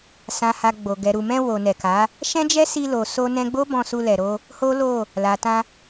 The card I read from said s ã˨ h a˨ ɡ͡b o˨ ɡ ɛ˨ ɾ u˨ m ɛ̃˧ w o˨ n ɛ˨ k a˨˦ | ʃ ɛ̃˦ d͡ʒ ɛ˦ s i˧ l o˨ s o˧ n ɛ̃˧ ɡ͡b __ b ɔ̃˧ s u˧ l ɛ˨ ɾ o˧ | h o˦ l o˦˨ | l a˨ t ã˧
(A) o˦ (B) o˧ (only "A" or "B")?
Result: A